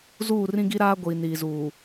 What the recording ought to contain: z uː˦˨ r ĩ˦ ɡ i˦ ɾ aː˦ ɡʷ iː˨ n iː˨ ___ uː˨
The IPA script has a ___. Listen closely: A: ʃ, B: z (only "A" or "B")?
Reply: B